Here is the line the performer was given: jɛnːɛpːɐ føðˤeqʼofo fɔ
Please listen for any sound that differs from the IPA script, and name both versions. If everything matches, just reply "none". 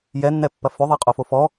none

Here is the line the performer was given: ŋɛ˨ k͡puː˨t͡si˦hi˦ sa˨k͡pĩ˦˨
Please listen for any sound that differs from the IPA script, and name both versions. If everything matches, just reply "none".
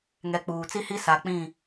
none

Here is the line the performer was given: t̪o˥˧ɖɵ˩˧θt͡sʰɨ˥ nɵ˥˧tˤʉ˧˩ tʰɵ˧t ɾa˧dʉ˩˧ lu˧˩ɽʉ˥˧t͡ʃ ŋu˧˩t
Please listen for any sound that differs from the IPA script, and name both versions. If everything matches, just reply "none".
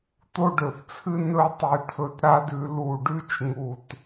ɽ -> ɖ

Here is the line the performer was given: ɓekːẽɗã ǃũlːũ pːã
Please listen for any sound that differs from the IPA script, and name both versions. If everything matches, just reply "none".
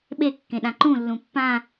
none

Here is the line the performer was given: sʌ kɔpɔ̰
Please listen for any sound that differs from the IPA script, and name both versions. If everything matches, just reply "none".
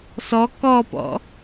ʌ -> ɔ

